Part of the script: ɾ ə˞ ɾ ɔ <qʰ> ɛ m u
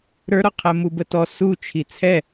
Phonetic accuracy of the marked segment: correct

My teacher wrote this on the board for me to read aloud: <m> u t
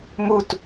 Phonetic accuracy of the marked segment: correct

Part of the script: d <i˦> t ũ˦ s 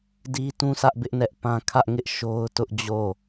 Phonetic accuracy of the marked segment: correct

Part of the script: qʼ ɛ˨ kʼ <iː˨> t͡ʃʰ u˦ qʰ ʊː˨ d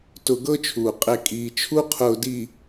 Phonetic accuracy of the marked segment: correct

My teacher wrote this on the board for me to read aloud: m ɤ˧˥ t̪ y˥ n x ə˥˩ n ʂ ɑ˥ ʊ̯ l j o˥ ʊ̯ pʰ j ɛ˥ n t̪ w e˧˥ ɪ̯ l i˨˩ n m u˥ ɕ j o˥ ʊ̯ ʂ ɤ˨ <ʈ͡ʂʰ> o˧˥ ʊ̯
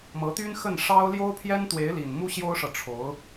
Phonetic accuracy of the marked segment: correct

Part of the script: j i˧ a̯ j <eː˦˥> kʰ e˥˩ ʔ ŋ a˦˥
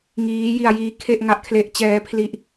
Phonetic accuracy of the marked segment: incorrect: iː˦˥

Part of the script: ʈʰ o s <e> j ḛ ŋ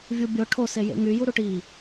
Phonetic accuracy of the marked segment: correct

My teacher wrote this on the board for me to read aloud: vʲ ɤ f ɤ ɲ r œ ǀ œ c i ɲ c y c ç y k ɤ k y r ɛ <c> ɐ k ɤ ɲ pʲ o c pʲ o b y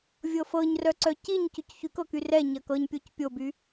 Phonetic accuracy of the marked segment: incorrect: ɲ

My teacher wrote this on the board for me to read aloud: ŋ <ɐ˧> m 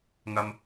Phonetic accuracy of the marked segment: correct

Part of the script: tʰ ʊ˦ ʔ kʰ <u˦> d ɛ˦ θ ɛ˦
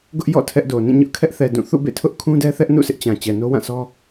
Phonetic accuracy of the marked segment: incorrect: ũ˦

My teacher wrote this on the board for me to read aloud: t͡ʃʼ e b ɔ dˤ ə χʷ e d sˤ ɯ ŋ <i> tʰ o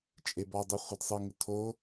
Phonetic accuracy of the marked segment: incorrect: ɪ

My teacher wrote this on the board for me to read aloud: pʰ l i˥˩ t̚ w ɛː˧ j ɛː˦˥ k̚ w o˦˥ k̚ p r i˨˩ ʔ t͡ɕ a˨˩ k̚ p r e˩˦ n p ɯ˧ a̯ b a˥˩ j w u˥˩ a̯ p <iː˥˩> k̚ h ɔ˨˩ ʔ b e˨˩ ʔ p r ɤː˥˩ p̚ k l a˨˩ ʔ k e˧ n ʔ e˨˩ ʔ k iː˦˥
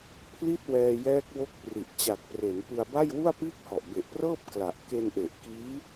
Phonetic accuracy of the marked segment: correct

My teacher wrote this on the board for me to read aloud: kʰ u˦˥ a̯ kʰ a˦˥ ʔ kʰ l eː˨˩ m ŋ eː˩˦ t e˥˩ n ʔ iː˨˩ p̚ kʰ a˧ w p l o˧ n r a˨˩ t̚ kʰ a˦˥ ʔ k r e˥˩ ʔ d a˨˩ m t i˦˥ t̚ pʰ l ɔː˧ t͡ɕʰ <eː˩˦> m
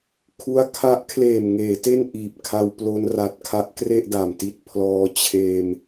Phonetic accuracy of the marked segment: incorrect: eː˧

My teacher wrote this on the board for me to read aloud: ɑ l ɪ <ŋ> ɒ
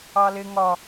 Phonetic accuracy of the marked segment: correct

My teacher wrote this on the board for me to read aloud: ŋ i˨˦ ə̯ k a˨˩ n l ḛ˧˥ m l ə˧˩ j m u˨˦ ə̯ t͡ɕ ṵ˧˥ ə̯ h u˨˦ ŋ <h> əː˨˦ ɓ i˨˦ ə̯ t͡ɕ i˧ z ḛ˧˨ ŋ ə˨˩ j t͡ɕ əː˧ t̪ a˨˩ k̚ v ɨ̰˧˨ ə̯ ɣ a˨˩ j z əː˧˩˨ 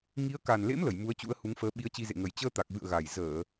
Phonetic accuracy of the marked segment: incorrect: f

